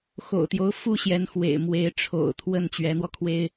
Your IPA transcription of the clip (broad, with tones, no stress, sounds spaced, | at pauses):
x o̰˨˩ ʊ̯ t̪ j o˦ ʊ̯ f u˥ ɕ j ɛ˧˥ n x w ḛ˨˩ ɪ̯ m w e˧˥ ɪ̯ ʈ͡ʂʰ o̰˨˩ ʊ̯ t̪ʰ w ə˥˩ n t͡ɕ ɥ ɛ˧˥ n̪ w ɔ˧ kʰ w e˥ ɪ̯